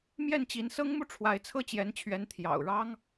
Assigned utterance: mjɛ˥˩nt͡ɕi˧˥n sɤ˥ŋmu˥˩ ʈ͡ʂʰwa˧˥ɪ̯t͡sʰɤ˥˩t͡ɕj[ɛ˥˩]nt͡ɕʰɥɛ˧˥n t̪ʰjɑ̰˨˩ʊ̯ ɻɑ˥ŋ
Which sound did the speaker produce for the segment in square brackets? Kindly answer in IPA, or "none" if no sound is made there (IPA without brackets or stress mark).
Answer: ɛ˧˥